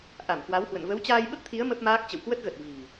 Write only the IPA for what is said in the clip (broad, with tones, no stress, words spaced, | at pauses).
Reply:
ʔa˧˩m kwa˨˦whwə̰˧˨n və˨˦wt͡ɕaː˧jɓə˦˥p̚t̪ʰi˨˦ə̯ mə˦˥p̚maː˦˥k̚ t͡ɕə̰˧˨wkwə˦˥t̚ɣə˨˩t̚ vi̤˨˩